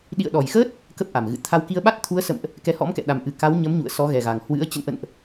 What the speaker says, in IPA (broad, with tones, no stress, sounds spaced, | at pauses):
ɗ ḭ˧˨ ə̯ ɗ ɔ˨˩ j x əː˦˥ t̚ | k ə˦˥ p̚ ʔ a˨˩ m ɣ ɨ̰˧˨ t̪ʰ a˧ w k i˧ ə̯ ɓ a˦˥ t̚ t̪ʰ u˨˦ ə̯ s ə̰˧˨ m ʔ | k ɛ˨˦ h ɔ̰˧˥ m k ɛ̰˧˨ ɗ a˨˩ m ʔ ɨ˨˩ k a˨˦ w ɲ ə˨˦ m ɲ ṵ˧˨ ə̯ s ɔ˨˦ ɣ ɛ˨˩ ɣ a˨˩ ŋ h w ɨ̰˧˥ ə̯ t͡ɕ ə̰˧˨ n ʔ ə̰˧˨ n ʔ